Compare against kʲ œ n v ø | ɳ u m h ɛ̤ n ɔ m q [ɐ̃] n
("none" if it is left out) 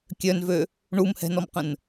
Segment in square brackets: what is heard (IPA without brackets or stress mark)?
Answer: ə̃